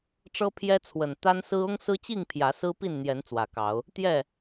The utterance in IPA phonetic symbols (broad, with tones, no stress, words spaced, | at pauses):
ʈ͡ʂɤ˦pʰjɛ˦t͡sʰwə˨˩n t̪a˦nsɹ̩˦ ʊ˦ŋsɹ̩˦t͡ɕi˥˨ŋ pʰjä˨˦sɹ̩˦pi˥˨nn̪jɛ˨˦n t͡swä˨˩kɑ˨˦ʊ̯ | t̪jɛ˥˨